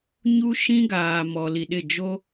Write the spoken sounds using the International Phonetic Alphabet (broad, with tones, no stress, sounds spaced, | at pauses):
ɲ u˦ ʃ ĩ˦ ɡ aː˨ m ɔ˨ l i˨ ɗ ɪ˦˨ d͡ʒ o˦